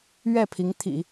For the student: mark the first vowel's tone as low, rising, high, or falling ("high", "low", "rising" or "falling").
falling